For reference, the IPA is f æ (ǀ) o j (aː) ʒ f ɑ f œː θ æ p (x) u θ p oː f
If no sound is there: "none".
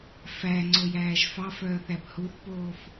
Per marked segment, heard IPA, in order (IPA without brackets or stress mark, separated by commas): ŋ͡ǀ, æː, h